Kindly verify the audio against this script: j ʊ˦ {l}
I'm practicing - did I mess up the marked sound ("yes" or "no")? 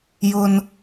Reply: yes